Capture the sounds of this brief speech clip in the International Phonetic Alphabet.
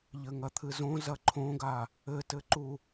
ʎɘŋɐt̪ʰɨzõ zɐǃʰõɡa | ɘtɘǃu

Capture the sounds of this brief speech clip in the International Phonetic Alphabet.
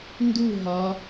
ndu ɦɒ

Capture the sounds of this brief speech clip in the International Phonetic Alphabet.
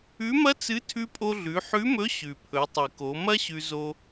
ʉ˧˥mɐ˥t͡sɨ˧˥ tʰʉ˧pʼo˧ɮʉ˩˧ ħʉ˧˥mɵ˧˥ ɕʉ˩pʰɵ˩˧tˤɨ˩ko˩˧ mɐ˥ɕʉ˧zo˧

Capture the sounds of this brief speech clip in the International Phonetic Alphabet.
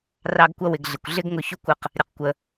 rɑ˧ɡ kʷʌ˧wɪ˩ɡɮɪ˩kʷ ɮɪ˥ɡŋʊ˧çʊ˥kʷə˧q | ɾʲə˩qkʷə˩

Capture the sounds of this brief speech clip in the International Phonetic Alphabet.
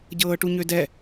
ɟɤːʈuɲødɛ

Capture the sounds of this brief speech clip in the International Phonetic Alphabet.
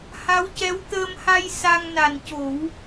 ha˧˥wcɛ˧˥wt̪əː˧mha˧j sa˧ŋna˨˩n co˨˩˦w

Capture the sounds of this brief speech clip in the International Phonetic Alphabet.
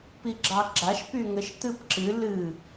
piɡ͡ǁɑɡ͡ǁaʃ pyŋəʃ t̪ɨpǁɨ lɨ

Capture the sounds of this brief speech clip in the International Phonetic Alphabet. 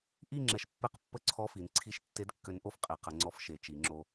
ʔi˥˨ ŋ͡ǁɛ˧ʃpːe˥˨q pːə˥˨ǀʰɔ˧˥˧fi˩˧n ǀʰi˧˥˧ʃtːe˧˥d kːø˧˥nʔo˧˥fqʼe˩˧qə˩˧ ŋ͡ǀɔ˧fʃe˩˧t͡ʃi˩˧ŋ͡ǁo˧

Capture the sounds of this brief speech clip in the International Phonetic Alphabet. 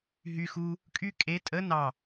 ɦy xu | kʼy kʼe tʼə nɑ

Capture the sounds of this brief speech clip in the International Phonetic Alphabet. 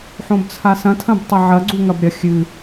ħõbt͡sʰasɐ̃tʰɐ̃b tˤɐʕɐɡ͡ǀu ŋɐbɾʲɐ xʲɨ

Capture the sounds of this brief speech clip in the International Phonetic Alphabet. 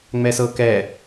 ŋ͡mɛsɤkɛ

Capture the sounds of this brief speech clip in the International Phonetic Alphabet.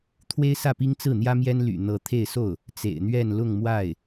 t̪ʰwe˥ɪ̯sä˥˩pi˥ŋ t͡sɹ̩˥˩n̪jä˥ mjɛ˥n ly̰˨˩ n̪ɤ˧˥ t̪ʰe˥˧ɪ̯so˥˩ʊ̯ | t͡sḛ˨˩ɪ̯n̪ɥɛ˥˧n lʊ˥˧ŋmwa˥˩ɪ̯

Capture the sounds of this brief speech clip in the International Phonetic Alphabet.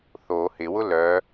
θo hɪwʊ lœ

